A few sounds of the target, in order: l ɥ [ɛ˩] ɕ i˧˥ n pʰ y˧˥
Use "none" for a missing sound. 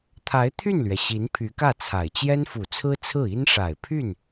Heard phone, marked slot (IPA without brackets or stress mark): ɛ˩